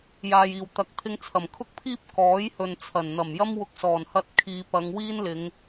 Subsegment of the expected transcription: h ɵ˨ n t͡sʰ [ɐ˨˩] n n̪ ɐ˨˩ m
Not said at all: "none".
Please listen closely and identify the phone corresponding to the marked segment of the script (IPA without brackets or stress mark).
ɐ˨˩